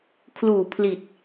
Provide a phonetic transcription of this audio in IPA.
kʰluː˨˩ pʰli˨˩t̚

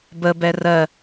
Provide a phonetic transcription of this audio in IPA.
bəbɛ rɜ

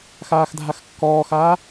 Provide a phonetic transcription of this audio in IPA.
xaːxdʱaxkːɔːxaː

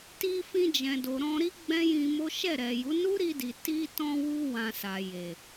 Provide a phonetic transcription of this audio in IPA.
ti˧fĩ˧d͡ʒɛ̃˨do˨ ɾɔ̃˧ɾi˦ ɡ͡bɛ̃˦jĩ˧mo˦ ʃɛ˦˨ɾɛ˨ju˨˦ nu˦ɾi˧di˨ ti˧tɔ̃˧wu˧ wã˧sa˨ je˨

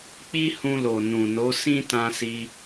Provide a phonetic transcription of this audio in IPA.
k͡pi˦hũ˧lo˨ nũ˨no˨˦ sĩ˦tã˧si˧

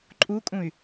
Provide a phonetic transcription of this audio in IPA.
ǃʼukʼũy̯

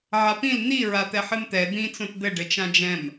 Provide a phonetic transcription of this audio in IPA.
ʕapĩl n̪i ɹat̪ɛħɨmt̪ɛ d̪ĩ t͡sõtd̪ɘ ɖɘt͡ʃãd͡ʒɛ̃m

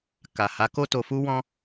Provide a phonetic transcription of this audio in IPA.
ka˨ha˨˦ko˦ to˧fu˦wɔ̃˦

